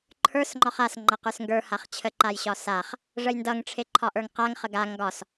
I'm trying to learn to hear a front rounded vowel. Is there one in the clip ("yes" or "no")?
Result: no